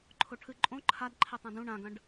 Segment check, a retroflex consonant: present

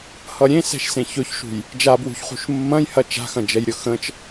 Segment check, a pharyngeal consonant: absent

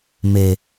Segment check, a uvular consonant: absent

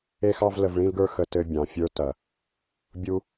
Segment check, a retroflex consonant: present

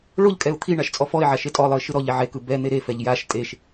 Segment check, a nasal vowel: absent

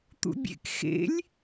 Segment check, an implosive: absent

